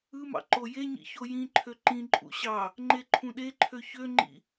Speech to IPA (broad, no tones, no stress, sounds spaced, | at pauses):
ɯ m ɑ̰ ǃ o j e ɲ ḭ ç o j ĩ ǃʰ ø ǃ ĩ ǃʼ ṵ ɕ ɑ | ŋ͡ǃ e ǃʰ ũ ɗ e ǃʰ ø ç ø ŋ͡ǃ ḭ